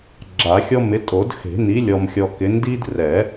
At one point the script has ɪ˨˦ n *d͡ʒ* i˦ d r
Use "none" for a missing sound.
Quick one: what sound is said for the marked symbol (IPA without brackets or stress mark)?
d